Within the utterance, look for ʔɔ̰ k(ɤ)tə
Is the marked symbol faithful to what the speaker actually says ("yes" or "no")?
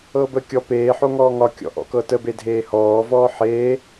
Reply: yes